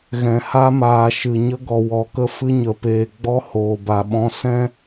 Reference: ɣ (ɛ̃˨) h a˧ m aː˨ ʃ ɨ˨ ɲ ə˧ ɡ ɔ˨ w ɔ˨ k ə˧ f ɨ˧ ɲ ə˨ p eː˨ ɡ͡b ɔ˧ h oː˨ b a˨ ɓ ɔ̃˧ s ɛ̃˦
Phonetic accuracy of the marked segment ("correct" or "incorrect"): correct